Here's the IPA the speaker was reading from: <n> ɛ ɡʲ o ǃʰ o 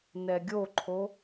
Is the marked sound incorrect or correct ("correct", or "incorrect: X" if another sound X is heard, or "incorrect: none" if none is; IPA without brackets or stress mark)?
correct